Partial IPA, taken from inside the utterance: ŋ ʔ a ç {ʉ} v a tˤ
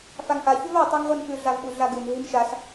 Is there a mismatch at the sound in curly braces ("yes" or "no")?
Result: no